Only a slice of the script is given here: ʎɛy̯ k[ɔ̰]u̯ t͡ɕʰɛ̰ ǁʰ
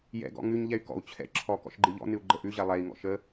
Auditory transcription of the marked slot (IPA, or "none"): ɔ̰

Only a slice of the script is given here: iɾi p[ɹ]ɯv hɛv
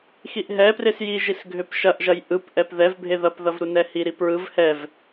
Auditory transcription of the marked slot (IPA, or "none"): ɹ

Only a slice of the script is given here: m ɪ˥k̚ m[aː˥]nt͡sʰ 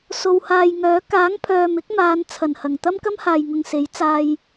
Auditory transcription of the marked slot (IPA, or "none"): aː˨˧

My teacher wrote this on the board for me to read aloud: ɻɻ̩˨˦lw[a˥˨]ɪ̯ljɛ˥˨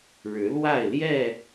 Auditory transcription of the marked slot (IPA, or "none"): a˥˨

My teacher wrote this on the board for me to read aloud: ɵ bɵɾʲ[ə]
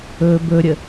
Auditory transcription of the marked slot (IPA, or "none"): ə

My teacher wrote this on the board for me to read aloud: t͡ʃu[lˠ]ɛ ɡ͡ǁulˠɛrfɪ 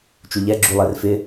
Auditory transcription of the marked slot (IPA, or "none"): ʎ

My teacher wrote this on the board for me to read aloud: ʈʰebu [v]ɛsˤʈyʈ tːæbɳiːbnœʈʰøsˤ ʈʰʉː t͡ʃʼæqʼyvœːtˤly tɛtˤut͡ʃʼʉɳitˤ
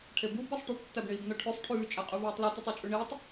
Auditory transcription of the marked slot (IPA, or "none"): b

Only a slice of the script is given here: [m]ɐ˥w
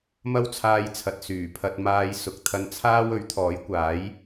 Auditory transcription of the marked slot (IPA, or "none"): m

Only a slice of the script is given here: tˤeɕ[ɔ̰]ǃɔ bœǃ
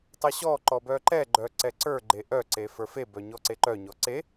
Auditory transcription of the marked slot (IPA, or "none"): ɔ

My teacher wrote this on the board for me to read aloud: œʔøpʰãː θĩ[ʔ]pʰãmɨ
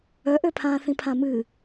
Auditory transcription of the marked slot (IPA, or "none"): none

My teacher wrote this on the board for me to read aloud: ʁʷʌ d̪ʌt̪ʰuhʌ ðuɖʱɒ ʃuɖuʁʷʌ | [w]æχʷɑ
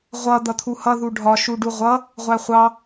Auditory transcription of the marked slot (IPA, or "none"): ʁʷ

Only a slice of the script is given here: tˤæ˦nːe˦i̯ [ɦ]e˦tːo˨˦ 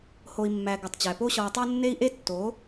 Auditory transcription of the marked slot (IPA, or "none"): ʔ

